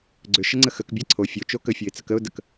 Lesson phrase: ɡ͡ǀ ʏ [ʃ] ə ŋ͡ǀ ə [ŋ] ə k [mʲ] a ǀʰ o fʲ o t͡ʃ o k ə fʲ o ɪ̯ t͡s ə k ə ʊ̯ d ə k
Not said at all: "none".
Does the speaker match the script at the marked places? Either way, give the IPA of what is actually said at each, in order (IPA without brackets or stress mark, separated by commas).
ʃ, x, bʲ